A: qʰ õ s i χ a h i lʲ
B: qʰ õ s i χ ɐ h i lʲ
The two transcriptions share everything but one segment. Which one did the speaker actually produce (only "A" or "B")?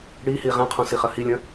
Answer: B